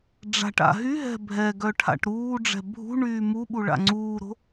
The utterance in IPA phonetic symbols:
ɖ͡ʐ a̤ ʈ a̰ ɦ y ɦ ɛ̤ bʱ ɛ ɡ œ ʈʰ a̰ ʈ ɾ uː ɖ͡ʐ ɛ̤ bʱ ṳ ɳ yː m u ɓ u ɭ a̰ ŋ͡ǀ uː ɾ o̤

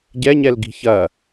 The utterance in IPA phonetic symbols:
ɟ ɛ ɲ ɛ l ɡ i̤ ç ɐ

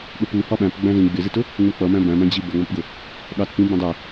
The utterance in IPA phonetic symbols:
ɠ ə p u h ɒ ɓ æ̃ p ɡ͡b æ̃ z ĩ ɡ͡b ɪ z i t ʊ | ŋ͡m u k͡p ʌ m æ̃ b æ̃ m æ̃ d͡ʑ i b ʌ ŋ͡m ɒ p ɡ ʊ | ɠ ɑ t p ĩ b ə̃ dˤ ɛ

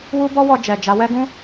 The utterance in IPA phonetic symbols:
w u˦ b ɔ˦ w ɔ˧ d͡ʒ ɛ˨ d͡ʒ a˨˦ w ɛ˦ ɡ ũ˦

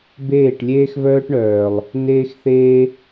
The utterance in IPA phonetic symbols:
b eː˦˨ ʈ lʲ eː˦ x v œː˦ ʈ ɳ œː˨ lˠ | n eː˦ x θ eː˦

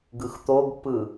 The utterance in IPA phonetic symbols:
ɡ ɯ x t̪ o ɡ pː ɯ

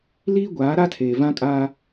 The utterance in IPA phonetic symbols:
l iː˦ ɡʷ aː˨˦ ɾ a˦ tʰ eː˨ v ã˦ kʼ aː˦

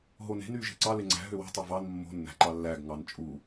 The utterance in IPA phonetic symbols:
ɦ o n e̤ n yː ʒ e̤ ǀ ɑ l e ŋ͡ǀ æ̤ ɦ ø w ṳ tˤ o v ɑ n mː o̤ nː æ̤ ǃ ɑ lː æː ɡ ŋ ɑ n t͡ʃʼ u

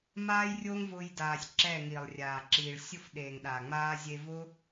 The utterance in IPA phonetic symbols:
m aː˦ j rʲ oː˦ ŋ v ʊː˧ j d aː˨ sʲ ǁ ɛ˦˨ ŋ i˨ lˠ rʲ aː˨ ǁ iː˨ ɭ sʲ ʊ˦ f ɗ eː˨ ŋ ɗ a˨ ŋ͡m aː˦ zʲ e˧ v ʊ˦

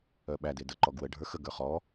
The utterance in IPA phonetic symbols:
œ ɓ æ d e d ə ǃ ɔ ɡ w ə ɖʱ ə˞ x ə ɡ ə˞ χ ɔ

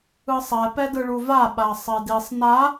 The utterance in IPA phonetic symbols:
ɯ sˤ ɛ p ɛ d ɯ ɭ u v a ɓ a sˤ e d i sˤ n a

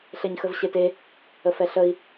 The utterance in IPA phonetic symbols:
ɬ e ɲ x ə v ɕ e t e | ə f ɛ ɬ ə i̯

